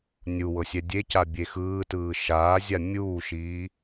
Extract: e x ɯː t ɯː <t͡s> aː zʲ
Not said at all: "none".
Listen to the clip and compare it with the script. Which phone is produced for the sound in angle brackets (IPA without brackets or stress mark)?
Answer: ʃ